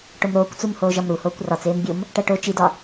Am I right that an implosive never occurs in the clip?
yes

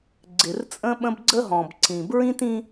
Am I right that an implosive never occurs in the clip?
no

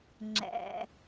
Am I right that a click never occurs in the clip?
no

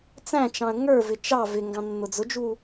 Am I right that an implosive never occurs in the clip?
yes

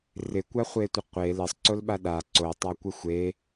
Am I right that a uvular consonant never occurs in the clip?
no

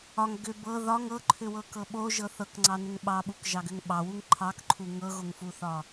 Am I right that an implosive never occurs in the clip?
no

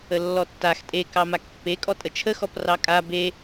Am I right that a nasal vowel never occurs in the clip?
yes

